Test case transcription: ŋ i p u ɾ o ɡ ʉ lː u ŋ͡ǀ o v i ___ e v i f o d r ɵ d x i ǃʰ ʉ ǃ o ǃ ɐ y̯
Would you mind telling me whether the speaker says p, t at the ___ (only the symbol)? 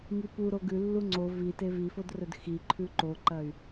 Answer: t